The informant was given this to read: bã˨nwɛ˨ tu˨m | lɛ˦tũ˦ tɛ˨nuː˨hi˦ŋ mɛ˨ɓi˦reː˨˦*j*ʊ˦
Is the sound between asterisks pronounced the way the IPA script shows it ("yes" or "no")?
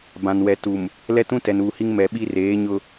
no